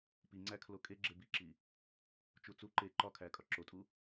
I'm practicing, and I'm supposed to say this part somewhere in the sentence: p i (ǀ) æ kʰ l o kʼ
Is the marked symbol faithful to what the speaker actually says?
no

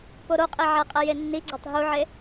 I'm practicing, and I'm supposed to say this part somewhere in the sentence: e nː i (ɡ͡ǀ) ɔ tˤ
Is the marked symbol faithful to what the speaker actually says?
yes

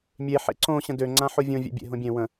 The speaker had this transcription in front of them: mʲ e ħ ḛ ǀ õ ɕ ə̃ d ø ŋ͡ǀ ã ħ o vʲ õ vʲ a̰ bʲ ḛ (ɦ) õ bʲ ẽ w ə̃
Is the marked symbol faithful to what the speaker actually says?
yes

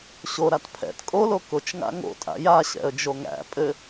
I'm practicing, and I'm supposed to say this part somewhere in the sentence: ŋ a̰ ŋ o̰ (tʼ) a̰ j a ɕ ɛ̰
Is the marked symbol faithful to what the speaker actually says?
yes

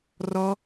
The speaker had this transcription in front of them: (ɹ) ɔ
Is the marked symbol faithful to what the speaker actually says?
no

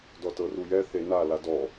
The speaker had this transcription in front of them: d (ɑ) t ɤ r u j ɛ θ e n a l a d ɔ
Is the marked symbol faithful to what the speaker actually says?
no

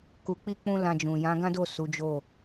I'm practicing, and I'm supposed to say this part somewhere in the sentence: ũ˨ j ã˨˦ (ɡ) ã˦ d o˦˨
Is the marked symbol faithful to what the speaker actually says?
yes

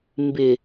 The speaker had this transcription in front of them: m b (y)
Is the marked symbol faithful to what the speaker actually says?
no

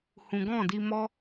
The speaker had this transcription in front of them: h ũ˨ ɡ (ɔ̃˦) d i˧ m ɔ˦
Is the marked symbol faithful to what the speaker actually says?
no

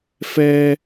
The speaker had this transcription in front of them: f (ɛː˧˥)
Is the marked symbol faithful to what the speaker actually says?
no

